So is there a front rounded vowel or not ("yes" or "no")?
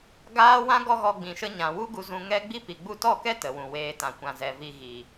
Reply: no